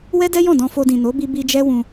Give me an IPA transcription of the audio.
w ɛ˦ d ɛ˦ j ɔ̃˦˨ d ɔ̃˧ f o˧ d ĩ˨ n o˨˦ b i˧ b i˧ d͡ʒ ɛ˦ w ũ˧

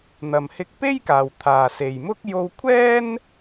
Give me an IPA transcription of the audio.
n̪ ɐ˨ m h ɪ˧ k̚ p e˥ j k aː˨ w t̪ʰ aː˨ s e˨ j m ʊ˥ k̚ j o˧ w kʷʰ ɛː˥ n

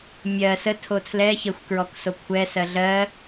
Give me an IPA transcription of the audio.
mʲ ɜ s ə tʰ o tʰ l ɛ ç ə xʷ k ɹ ɔ k s o kʷʰ ɛ s ɜ ɮ ɜ

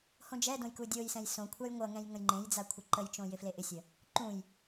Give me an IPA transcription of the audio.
h õ d͡ʒ ɛ d õ j k u dʲ o j s ɛ̃ j s õ kʷʰ a j ŋʷ ʌ ŋ ɛ̃ j ŋ ə̃ j ŋ͡ǃ ẽ j d͡z a kʷʰ ɪ ǃ ə j t͡ʃ õ j ɪ f l e ʔ ɪ sʲ ə | ǃ ũ j

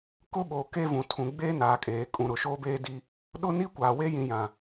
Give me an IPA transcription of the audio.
k ʊ˦ ɓ oː˨ k e˦ v ũ˨ tʰ ũ˨ ɡ͡b eː˦ n aː˨ kʼ eː˨ kʼ ũ˨ ɾ ʊ˨ ʃ oː˦ b eː˦ d i˦ | ɗ ʊ˦ n i˦ kʷ aː˨ w e˦ j ĩ˨ j ã˨

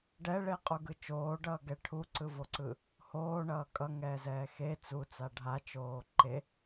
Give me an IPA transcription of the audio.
ɖ ɛ ɭ e qʼ u ɡ ɯ t͡ʃ oː ɖ ʌː ɡ ɛ ʈʰ u ǀ ɯ v o ǀ ɯ | h oː ɳ ʌː kʼ ʌ ŋ ɛː z ɛː x e t͡s u t͡s a ɖʱ a t͡ʃ oː ǃ e

